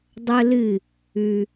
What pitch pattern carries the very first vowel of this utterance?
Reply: high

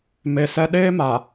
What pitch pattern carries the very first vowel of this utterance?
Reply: low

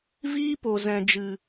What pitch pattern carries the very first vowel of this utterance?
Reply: high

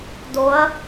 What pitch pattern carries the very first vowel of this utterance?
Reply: rising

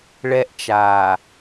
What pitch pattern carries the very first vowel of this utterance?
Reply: high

